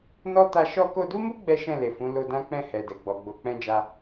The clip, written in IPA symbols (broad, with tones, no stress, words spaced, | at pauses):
nɔ˦ ta˧ ʃɔ˧ko˧du˦mu˦ ɡ͡bɛ˦ʃɛ̃˦˨le˨fũ˨˦ lo˧dã˦k͡pɛ̃˦˨ hɛ˨dɛ˨ ɡ͡bɔ˨ɡ͡bo˨˦k͡pɛ̃˦d͡ʒa˦